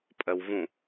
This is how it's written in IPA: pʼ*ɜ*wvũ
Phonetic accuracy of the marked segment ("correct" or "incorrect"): correct